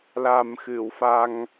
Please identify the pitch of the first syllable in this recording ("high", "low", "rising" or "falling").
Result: low